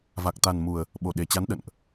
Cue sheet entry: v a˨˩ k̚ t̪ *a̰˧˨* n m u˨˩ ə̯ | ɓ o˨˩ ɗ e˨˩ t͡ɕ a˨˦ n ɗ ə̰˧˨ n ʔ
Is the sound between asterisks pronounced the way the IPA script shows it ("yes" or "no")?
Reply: no